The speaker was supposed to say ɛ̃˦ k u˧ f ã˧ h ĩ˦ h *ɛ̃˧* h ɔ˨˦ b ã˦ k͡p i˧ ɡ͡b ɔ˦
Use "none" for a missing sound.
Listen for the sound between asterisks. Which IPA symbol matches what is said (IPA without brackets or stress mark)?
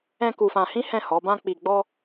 ɛ̃˦˨